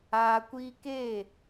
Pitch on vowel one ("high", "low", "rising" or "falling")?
low